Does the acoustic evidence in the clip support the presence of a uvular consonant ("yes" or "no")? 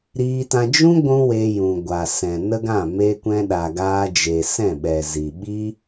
no